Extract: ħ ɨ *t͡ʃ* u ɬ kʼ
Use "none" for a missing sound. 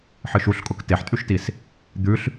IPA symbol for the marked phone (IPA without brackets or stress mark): ʃ